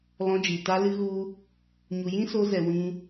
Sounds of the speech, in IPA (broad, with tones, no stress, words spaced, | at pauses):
lɔ̃˧d͡ʒi˨ ta˧lɨ˧ ɣu˦ | ɲu˨jĩ˦so˧zɛ˨ wĩ˧